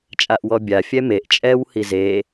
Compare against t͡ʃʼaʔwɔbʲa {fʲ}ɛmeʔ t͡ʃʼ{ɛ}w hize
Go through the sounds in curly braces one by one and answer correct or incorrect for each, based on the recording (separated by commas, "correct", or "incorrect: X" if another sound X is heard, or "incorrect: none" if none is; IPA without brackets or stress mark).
correct, correct